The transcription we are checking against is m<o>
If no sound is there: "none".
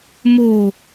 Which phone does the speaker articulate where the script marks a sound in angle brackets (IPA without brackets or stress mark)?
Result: o